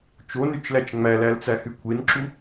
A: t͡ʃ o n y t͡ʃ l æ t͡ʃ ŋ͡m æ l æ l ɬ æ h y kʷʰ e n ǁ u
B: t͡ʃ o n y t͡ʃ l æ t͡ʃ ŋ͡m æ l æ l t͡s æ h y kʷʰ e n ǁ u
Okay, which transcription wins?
B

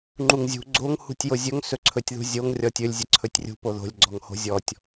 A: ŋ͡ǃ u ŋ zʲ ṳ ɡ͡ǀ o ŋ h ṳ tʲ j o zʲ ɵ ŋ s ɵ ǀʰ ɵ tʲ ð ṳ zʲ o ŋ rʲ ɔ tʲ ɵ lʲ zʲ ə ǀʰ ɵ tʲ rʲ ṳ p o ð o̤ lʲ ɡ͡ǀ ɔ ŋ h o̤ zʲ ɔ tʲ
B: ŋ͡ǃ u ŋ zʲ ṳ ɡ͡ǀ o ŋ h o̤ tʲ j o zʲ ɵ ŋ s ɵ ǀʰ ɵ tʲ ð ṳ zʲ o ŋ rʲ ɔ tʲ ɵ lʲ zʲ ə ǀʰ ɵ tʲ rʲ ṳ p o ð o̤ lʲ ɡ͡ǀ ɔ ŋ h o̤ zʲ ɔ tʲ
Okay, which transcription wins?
A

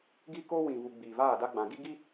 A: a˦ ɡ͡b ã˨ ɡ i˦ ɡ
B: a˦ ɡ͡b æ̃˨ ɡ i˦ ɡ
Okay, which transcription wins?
A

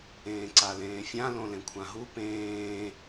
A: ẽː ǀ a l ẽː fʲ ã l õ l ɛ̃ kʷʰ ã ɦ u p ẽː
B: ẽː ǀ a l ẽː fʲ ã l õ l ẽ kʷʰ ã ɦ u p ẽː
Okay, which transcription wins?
B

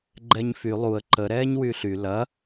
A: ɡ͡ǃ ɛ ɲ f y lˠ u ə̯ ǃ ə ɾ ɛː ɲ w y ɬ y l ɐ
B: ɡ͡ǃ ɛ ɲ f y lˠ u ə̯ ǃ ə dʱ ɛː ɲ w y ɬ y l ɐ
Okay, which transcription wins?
A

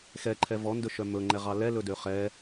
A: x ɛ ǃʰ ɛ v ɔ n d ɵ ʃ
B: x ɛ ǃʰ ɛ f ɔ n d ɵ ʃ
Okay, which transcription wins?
A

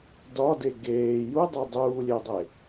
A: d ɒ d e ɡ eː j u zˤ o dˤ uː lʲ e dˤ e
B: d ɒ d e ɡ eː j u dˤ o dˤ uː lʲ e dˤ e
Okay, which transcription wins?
B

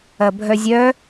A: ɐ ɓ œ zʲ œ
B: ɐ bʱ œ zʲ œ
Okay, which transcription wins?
B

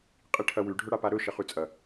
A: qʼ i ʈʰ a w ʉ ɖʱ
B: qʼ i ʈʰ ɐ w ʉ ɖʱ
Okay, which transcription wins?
B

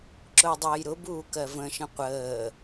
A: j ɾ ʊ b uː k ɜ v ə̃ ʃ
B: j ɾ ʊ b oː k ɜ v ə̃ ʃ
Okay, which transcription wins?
A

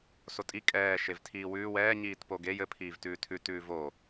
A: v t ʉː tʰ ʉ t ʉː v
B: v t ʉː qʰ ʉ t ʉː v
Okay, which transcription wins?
A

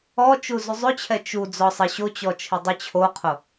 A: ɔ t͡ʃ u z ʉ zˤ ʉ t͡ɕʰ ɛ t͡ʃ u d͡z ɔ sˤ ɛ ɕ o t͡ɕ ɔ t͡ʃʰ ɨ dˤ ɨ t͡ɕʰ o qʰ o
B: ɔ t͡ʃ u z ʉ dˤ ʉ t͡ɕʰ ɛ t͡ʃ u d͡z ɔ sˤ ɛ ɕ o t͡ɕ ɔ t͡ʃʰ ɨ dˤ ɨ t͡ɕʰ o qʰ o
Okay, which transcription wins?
A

